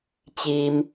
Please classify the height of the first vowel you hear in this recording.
high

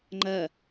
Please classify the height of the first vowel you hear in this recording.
low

